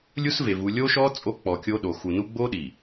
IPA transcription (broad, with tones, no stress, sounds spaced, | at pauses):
lʲ u˦ s v e˨ v u˨ lʲ o˦ ʃ ɔ˦ t͡sʼ o˦ k͡p ɔ˨ kʲ o˦ ɗ o˨ x u˨ n u˦ ɡ͡b o˦ ɗ i˨